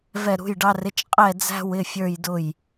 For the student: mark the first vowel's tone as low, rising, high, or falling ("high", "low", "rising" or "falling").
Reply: falling